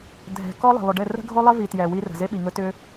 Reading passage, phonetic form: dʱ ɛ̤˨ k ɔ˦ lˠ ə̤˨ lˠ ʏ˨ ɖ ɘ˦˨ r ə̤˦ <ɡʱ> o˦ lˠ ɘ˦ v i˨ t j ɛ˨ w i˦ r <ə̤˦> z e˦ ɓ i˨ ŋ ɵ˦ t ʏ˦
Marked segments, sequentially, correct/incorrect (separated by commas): correct, incorrect